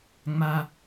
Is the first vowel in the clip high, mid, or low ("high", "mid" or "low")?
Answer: low